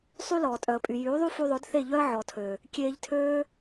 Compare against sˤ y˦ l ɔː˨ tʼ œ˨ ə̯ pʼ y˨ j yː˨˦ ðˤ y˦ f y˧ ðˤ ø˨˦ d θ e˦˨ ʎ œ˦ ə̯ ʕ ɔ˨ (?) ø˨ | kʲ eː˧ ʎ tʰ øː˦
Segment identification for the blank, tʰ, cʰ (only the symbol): tʰ